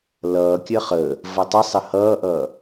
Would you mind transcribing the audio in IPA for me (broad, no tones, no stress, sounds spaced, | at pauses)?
l ʌː kʲ ɜ χ əː | v ʌ tˤ ə sˤ ə h ʌː ʔ ʌː